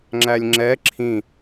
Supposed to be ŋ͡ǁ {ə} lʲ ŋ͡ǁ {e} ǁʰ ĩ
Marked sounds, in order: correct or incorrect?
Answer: incorrect: æ, incorrect: ɛ

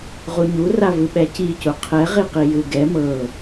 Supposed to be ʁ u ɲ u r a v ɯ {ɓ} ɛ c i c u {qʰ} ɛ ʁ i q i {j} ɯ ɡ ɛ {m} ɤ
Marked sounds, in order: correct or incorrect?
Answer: correct, correct, correct, correct

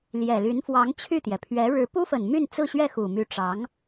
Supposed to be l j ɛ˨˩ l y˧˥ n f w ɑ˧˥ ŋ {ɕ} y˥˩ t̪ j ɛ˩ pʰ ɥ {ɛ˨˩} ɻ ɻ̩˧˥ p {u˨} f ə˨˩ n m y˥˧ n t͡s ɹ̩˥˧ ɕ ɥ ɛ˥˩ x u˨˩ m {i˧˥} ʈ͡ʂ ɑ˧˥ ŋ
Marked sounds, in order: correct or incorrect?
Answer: incorrect: t͡ɕʰ, incorrect: ɛ˧˥, incorrect: u˥, incorrect: y˧˥

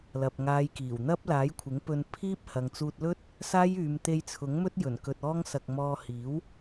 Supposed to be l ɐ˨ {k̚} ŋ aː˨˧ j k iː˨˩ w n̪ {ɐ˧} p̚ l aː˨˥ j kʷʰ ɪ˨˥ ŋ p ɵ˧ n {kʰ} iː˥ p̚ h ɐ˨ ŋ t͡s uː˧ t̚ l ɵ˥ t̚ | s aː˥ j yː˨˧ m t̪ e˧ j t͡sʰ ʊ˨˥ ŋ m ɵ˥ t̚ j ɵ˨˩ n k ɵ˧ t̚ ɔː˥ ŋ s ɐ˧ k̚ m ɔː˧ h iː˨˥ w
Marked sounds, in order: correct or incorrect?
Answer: incorrect: p̚, incorrect: ɐ˥, incorrect: pʰ

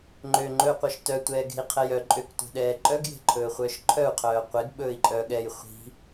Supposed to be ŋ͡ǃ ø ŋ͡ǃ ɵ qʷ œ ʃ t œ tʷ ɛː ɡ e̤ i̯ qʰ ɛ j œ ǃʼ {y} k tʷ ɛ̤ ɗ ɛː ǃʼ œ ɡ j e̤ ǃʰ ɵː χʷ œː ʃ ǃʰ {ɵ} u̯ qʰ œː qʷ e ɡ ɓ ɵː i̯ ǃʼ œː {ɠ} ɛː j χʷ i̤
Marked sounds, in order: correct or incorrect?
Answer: incorrect: ø, incorrect: œ, correct

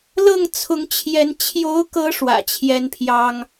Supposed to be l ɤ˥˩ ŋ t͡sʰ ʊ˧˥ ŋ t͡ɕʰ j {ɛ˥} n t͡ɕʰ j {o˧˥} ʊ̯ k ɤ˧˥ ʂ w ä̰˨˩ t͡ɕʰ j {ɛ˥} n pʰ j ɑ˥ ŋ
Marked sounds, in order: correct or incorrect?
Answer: incorrect: ɛ˧˥, correct, correct

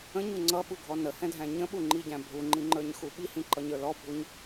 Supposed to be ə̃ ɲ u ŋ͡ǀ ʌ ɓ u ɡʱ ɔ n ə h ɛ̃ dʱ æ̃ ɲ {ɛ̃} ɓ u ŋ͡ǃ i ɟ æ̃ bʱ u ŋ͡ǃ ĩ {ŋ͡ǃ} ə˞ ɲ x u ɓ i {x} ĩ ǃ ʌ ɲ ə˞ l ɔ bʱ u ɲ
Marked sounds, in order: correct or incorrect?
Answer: incorrect: ə̃, correct, incorrect: h

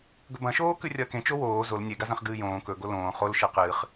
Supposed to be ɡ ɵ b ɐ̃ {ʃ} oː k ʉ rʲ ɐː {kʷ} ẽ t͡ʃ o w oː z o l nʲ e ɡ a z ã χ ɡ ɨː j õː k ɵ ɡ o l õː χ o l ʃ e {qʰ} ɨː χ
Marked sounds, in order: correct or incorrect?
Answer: correct, incorrect: k, incorrect: q

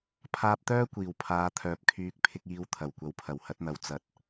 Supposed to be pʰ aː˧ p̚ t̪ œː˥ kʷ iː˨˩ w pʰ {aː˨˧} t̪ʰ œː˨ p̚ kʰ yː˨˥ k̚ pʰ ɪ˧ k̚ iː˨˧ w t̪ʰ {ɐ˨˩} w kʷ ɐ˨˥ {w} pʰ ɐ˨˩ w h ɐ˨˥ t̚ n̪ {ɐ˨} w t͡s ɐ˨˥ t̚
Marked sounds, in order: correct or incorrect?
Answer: correct, correct, correct, correct

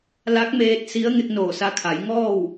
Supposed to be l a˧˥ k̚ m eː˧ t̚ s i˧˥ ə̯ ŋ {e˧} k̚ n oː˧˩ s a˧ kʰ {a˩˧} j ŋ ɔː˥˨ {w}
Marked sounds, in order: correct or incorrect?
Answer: correct, correct, correct

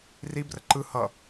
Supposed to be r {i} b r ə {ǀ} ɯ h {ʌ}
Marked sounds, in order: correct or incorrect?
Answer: correct, incorrect: ǃ, correct

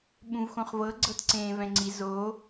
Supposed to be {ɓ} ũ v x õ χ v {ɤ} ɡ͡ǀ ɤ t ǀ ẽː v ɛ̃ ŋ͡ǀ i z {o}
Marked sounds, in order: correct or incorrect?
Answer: correct, correct, correct

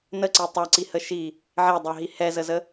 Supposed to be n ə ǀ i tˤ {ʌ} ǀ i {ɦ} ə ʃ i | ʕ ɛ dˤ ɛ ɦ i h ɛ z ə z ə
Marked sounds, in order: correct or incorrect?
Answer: correct, incorrect: h

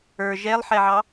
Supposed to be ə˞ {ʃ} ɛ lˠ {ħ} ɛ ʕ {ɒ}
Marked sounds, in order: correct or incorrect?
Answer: incorrect: ʒ, correct, incorrect: ɑ

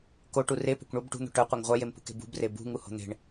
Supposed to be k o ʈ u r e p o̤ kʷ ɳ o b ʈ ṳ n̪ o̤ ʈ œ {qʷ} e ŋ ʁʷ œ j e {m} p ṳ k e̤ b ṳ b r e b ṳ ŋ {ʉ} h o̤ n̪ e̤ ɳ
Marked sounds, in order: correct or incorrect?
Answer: correct, correct, incorrect: u

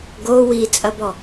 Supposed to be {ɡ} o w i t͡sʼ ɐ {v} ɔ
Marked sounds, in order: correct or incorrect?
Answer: correct, incorrect: b

